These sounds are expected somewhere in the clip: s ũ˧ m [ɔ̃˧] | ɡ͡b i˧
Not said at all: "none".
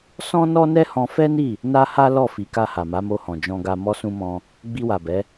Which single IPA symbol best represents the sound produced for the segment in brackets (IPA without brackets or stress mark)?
ɔ̃˧